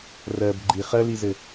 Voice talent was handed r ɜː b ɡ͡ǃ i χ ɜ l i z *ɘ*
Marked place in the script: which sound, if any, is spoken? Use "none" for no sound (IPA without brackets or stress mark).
ɘ